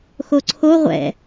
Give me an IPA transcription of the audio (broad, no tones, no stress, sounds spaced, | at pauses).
x o ǀʰ o ʁʷ ɛ̰